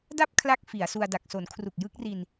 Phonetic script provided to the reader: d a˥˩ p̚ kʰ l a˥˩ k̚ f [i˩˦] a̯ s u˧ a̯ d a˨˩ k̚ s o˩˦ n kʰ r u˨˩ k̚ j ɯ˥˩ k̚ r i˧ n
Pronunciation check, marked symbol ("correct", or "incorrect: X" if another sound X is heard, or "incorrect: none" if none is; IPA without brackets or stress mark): correct